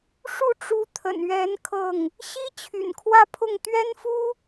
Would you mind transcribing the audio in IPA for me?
ʂ u˥˩ ʈ͡ʂ u˧˥ t̪ʰ ə̰˨˩ n ɥ ɛ˧˥ n kʰ ɤ˥˩ ŋ | ɕ i˥ t͡ɕʰ y̰˨˩ n kʰ w ä˥˧ pʰ ʊ˥˩ ŋ t̪ ɥ ɛ˥ n f u˥

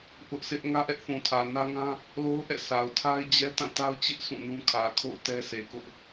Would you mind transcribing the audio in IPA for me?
ʔ ʊ˦ ʔ sʰ ɪ˦ ʔ ŋ ä˦ ʔ ɛ˦ ʔ θ ũ˨ tʰ ä˨ n ä˦ ŋ ã˦ | l o˦ ʊ̯ ʔ ɛ̰˦˨ sʰ a˨ ʊ̯ tʰ a˦ ɪ̯ d͡ʑ ɛ˦ t ã˦˨ t a˦ ʊ̯ t͡ɕ ɪ˦ ʔ sʰ ũ˦˨ n ũ˦ kʰ ä˨ kʰ o̰˦˨ ʊ̯ t ɛ˦ sʰ e˨ k ʊ˦ ʔ

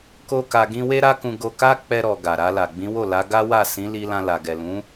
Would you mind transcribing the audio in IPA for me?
k o˦ k a˧ ɡ ĩ˦ w e˦ ɾ a˦ k ũ˧ ɡ o˧ k a˦ k͡p ɛ˧ ɾ ɔ˨ ɡ a˨ ɾ a˧ l a˨ ɡ͡b ĩ˨˦ w o˦˨ l a˨˦ ɡ a˦ w a˦˨ s ĩ˨˦ l i˧ l ã˧ l a˨ ɡ ɛ˨ l ũ˨˦

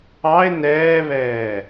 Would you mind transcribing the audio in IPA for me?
ɑ e̯ n ɛː β ɛː

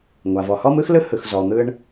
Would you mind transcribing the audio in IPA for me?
ŋʷ a˩ v ɔ˩ h ɔ˥ m ɯ˥ x l ɯ˥ h ɯ˩ x z ɔ˩ n̪ ɯ˧ ɳ

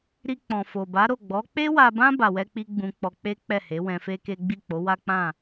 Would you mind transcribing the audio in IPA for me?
ɾ i˧ k͡p ɔ̃˨ f o˨ b a˨˦ ɾ o˦˨ ɡ͡b ɔ˨˦ k͡p e˦ w a˧ b ã˦ b a˧ w ɛ˦ k͡p i˦ ɡ͡b ũ˧ k͡p ɔ˧ k͡p e˦ k͡p ɛ˦˨ h e˨˦ w ɛ̃˧ f e˦ k e˦ ɡ͡b i˦˨ k͡p o˨˦ w a˦ k͡p ã˦˨

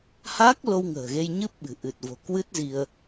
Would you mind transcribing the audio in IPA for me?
h aː˦˥ k̚ l o˧ w ŋ ə̤ː˨˩ ɣ e˧ j ɲ ɨ˦˥ p̚ ɓ ɨ̤˨˩ ʔ ɨ˨˩ t̚ v o̤˨˩ k w ɨ˦˥ t̚ z i˧ ə̯

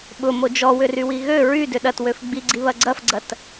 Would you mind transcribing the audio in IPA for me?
ɓ ʊ m o d͡ʒ ɔ w ʏ r y w i ɣ ø ɹ y d ʏ ɗ ɐ t w ø f ɡ͡b i ɡ͡ǀ i β ɐ ɡ͡ǀ ɐ f ɡ͡ǀ ɐ t

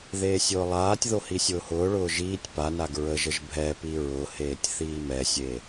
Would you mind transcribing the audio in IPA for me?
ð eː sʲ ʊː lˠ aː tʲ ð o h i sʲ ʊː h ʊː ɭ ʊː ʒ iː tʲ p a n a ɡ ɹ ə ʒ ə ʒ bʱ ɛ p i ɹ ʊ h eː tʲ θ iː m ɛ sʲ e

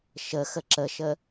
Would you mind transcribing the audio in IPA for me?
ʃ ə x ə ǁ ə ʃ ə

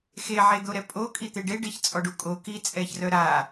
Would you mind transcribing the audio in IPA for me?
x e ʕ e d̪ o ɾ ɛ pʼ o kʼ i t̪ e ɖ e ɖ e ç t͡sʼ ɔ ɖ u kʼ o k i t͡sʼ ɛ ç r œ ɾ a

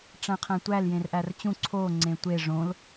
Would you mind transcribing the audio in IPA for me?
ʈ͡ʂ æ̃ qʰ æ̃ tʷ æ l j ẽ r ʔ æ r t͡ɕ ũ ǀʰ o ŋ͡ǀ ẽ tʷ e ʐ õ l

